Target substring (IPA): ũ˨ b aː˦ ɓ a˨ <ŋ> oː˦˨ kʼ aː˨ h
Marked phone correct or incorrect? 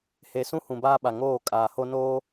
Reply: correct